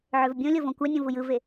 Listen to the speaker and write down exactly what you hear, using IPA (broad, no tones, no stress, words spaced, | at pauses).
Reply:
ʕøvbʲõlʲo võkʷænʲõ vujɯve